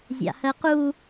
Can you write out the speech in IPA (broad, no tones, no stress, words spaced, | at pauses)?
zʲa̰hɜqu